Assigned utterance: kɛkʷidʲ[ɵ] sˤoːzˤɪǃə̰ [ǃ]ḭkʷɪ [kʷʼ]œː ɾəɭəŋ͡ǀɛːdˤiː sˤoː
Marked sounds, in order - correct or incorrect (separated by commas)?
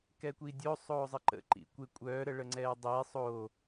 incorrect, correct, correct